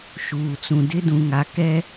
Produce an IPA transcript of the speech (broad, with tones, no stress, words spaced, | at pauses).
ʃuː˨t͡sũ˨dɪ˦ dũ˨ŋa˨ kɛ˦